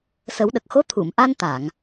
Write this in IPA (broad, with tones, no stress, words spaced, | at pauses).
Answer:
sə˨˩˦wɗə˨˩k̚xo˧˥ t̪ʰu˨˩˨mʔa˧nt̪a˨˩˨ŋ